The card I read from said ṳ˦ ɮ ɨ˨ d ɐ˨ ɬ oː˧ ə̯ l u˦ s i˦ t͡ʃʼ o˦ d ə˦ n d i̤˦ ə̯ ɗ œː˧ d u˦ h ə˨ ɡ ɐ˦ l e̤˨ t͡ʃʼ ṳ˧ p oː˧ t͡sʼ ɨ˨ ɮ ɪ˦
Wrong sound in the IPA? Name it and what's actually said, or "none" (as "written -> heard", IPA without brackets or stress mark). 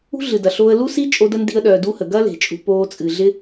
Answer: none